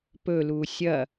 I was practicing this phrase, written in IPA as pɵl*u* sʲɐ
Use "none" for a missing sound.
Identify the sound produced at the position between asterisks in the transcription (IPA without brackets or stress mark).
u